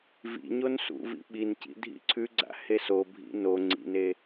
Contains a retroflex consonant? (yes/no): no